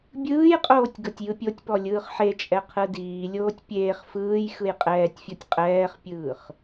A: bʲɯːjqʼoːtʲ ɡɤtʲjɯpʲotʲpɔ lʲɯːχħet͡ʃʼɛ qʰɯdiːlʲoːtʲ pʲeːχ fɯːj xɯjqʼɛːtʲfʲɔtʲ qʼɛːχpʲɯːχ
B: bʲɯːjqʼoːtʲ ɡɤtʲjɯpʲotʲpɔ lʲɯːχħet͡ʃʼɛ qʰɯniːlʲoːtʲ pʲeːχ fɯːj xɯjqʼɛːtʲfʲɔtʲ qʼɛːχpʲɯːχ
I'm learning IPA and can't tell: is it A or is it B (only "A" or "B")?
A